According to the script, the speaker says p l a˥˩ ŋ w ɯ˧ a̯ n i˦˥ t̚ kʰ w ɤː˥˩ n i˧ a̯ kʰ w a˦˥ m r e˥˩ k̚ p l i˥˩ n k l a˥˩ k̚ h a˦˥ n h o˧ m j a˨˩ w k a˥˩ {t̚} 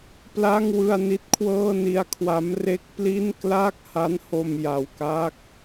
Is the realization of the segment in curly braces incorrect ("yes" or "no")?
yes